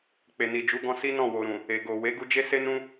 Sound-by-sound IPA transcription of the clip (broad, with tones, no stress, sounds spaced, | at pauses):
k͡p e˨ n i˨ d͡ʒ u˨˦ ɡ ɔ̃˧ s i˦ n ɔ̃˦˨ w o˨ ɾ ũ˨ | e˨ ɡ o˨ w e˨˦ ɡ u˧ d͡ʒ e˦ s e˦ n ũ˦